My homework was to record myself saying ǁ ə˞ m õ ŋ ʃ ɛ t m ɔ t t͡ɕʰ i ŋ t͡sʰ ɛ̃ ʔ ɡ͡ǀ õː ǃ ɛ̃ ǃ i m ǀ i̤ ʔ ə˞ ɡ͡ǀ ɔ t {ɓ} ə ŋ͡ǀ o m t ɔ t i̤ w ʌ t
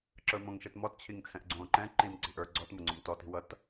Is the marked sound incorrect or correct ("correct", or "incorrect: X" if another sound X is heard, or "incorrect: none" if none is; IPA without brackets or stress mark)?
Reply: incorrect: m